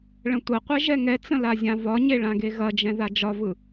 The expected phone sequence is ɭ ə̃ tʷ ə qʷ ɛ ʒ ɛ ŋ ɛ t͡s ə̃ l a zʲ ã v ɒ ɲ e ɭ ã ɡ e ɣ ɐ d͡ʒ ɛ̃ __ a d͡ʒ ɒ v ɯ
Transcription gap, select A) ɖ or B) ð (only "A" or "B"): B